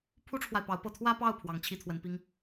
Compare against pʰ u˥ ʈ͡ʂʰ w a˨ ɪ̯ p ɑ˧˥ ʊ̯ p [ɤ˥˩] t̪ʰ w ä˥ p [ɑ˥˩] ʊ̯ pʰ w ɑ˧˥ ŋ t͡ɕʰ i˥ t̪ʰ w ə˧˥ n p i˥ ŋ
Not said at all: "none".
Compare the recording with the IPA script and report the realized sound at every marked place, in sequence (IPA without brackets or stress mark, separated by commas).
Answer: ɤ˥˩, ɑ˥˩